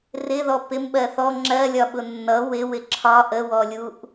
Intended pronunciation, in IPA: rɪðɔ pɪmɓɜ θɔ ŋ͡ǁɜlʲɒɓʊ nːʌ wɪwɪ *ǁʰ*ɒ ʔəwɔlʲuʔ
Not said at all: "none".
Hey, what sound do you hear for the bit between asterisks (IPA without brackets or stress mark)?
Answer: ǁʰ